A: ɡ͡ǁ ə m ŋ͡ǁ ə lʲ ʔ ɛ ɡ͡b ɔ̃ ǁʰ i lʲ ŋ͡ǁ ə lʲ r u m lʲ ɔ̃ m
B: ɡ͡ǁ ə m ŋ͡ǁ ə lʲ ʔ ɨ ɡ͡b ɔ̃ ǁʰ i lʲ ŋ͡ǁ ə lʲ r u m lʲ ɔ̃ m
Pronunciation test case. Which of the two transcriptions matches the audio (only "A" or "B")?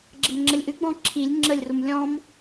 B